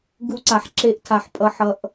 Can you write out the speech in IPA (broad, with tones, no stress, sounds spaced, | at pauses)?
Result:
ɡ u˧ ǀ a˨ ħ ǁ e˧ ʔ tʰ a˨ ħ pʼ ʌ˨ ħ ʌ˨ ʔ